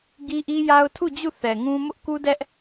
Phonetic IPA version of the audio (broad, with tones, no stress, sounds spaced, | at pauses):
ɡ i˦ ʔ i˦ j a˦ ʊ̯ tʰ u˦˨ d͡ʑ u˦˨ θ ɛ˨ ŋ ũ˦ m ʊ˦ ʔ k u˦ d ɛ˦ ʔ